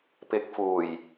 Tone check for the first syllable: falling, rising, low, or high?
rising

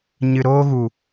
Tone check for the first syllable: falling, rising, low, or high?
low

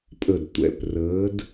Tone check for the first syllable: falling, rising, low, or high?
low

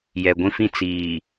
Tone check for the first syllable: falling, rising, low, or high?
low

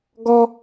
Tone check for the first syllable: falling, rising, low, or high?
high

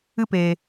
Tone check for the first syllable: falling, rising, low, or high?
high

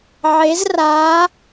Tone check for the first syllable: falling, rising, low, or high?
rising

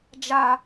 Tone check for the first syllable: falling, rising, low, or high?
high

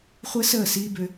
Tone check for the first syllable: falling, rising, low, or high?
high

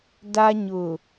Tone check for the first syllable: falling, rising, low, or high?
high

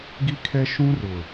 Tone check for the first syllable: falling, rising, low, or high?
high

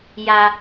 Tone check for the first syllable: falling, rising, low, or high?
low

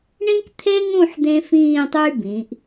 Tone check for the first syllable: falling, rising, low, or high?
high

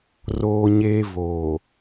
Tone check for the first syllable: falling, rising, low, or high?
high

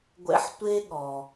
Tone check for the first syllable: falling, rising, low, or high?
high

